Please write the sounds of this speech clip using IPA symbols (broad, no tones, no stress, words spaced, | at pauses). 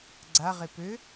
ɡ͡ǀaʁe pø